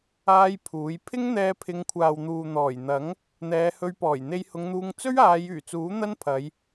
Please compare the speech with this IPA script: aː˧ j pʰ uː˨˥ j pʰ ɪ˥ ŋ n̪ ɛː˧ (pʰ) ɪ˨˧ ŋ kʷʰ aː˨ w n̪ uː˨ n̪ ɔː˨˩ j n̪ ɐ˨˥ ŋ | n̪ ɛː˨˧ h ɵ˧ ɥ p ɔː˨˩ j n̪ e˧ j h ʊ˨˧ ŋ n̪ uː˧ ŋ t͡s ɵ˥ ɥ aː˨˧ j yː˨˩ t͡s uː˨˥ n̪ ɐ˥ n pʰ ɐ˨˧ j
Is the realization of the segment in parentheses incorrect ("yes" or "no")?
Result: no